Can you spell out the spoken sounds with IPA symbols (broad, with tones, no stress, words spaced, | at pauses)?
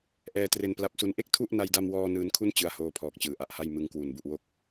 ʔɛː˧tre˧npla˦˥p̚su˦˥n ʔe˥˩k̚ tʰu˥˩ʔna˧jda˧mwɔː˧ nɯː˦˥nkʰu˥˩n t͡ɕɯ˦˥a̯hoː˧pʰɔː˨˩k̚ t͡ɕɯː˩˦ʔa˨˩ʔha˥˩j mɯ˧ŋkwu˨˩n bu˨˩ʔwo˦˥k̚